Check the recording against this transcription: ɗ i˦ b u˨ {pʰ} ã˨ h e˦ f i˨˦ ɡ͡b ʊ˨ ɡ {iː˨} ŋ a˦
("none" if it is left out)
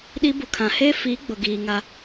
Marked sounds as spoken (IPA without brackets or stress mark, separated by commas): kʰ, iː˨